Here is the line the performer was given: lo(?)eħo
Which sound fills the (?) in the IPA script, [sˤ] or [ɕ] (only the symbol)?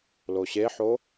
ɕ